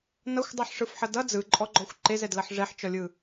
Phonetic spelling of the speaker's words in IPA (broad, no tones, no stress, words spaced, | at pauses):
nʌxʷdˤɯħʂɯfħʌ dʌ d͡zɯǃʼɔɡ͡ǃɔxʷ ǃezɛdlʌħ ʐɛħt͡ʃɔlʲɯ